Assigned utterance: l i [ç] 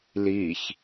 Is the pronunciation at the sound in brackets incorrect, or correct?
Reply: correct